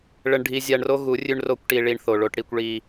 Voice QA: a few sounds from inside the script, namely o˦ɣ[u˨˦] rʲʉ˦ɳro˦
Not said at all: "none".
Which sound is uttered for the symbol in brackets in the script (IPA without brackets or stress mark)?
u˨˦